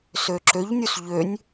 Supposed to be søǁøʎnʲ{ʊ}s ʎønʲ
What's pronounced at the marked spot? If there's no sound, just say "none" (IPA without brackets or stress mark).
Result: u